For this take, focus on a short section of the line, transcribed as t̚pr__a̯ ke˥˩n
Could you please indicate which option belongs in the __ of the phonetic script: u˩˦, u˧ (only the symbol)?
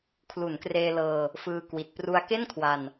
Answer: u˧